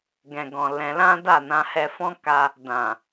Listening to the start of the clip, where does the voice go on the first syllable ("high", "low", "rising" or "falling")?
low